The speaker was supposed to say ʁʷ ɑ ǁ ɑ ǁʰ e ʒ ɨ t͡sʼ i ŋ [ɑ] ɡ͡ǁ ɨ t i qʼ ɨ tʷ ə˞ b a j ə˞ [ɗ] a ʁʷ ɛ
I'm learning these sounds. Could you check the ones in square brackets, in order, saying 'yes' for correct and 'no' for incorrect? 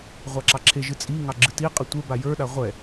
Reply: yes, yes

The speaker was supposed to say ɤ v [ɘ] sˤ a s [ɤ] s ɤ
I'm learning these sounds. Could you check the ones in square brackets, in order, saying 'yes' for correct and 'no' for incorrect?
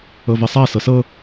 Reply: yes, yes

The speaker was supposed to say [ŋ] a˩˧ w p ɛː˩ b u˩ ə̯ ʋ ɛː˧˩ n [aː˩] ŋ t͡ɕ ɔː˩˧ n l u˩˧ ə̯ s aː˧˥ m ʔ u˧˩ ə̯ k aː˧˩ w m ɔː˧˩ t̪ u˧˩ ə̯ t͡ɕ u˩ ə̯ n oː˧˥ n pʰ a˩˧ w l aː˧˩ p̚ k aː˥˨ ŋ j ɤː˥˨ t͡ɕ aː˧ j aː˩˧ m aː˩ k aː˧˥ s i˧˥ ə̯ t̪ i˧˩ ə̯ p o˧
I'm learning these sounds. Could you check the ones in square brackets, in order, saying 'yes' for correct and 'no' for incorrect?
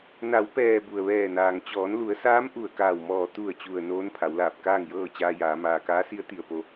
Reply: no, yes

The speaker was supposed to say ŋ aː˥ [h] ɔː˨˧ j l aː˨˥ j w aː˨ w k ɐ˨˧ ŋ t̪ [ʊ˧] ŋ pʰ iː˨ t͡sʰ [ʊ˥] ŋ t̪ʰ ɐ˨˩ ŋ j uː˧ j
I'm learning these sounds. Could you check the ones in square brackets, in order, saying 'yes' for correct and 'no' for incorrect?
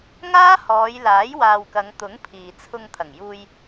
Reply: yes, no, no

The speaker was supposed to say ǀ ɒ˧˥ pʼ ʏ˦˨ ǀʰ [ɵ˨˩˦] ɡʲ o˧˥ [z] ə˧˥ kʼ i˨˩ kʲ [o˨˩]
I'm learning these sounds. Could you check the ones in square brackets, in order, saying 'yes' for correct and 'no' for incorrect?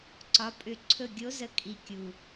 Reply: no, yes, no

